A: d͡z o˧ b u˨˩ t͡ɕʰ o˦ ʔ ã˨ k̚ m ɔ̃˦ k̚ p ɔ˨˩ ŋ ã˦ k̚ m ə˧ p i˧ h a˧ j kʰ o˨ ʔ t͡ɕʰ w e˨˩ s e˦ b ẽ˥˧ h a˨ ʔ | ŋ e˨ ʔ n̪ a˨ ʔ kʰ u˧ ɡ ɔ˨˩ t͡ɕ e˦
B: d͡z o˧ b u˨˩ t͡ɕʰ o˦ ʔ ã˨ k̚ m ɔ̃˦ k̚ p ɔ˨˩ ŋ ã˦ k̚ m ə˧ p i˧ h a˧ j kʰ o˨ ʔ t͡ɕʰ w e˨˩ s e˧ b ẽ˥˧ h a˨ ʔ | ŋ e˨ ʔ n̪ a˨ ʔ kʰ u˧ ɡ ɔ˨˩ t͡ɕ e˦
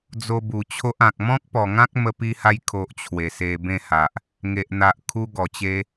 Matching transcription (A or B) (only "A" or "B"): B